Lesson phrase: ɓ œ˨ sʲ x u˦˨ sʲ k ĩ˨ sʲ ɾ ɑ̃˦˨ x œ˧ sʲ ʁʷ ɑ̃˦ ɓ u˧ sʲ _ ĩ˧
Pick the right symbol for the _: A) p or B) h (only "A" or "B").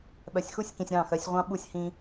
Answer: B